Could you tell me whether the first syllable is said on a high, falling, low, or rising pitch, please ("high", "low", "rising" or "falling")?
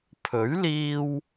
rising